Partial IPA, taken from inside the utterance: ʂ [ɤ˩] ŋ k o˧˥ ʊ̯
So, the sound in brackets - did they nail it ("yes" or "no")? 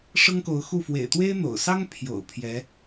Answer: no